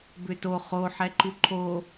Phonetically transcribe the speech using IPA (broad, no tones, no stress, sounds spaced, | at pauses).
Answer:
b ʏ t o χ o ħ ɛ ǃ u ǃʰ o